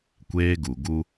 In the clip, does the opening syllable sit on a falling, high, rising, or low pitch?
high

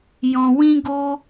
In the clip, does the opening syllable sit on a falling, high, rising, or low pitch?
low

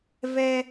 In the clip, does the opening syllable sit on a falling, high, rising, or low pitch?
high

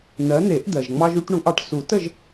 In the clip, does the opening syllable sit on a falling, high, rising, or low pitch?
rising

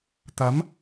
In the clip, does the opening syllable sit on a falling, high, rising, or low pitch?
rising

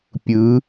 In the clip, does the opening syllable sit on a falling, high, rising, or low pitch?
rising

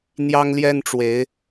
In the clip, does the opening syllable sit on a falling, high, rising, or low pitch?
high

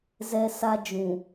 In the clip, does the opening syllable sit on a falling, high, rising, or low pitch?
high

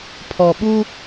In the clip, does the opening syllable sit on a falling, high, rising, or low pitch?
low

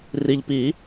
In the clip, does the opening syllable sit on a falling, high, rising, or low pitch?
low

